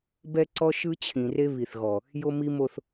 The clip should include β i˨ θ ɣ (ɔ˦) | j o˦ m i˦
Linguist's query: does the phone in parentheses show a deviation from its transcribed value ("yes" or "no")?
yes